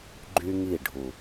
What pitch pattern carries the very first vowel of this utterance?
high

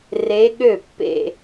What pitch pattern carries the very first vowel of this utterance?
rising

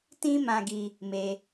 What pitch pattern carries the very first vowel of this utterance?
high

